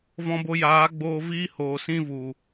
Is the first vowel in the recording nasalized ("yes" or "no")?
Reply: yes